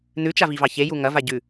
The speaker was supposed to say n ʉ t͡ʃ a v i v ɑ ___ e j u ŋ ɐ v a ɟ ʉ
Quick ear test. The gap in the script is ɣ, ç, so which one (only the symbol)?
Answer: ç